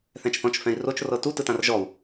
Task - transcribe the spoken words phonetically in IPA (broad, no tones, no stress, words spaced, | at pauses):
θɛ̃t͡ʃθɔ̃t͡ʃfɛ̃i̯ rot͡ʃ rɤtu tɯtãrʒɔu̯